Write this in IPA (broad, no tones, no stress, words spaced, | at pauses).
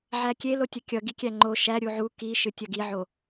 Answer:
ʕækʲelotʲʌ kʲʌ ɡikʲæŋ͡ǃo ʃæ ɾʲuʕu kiʃɨ tʲʌɡiʕo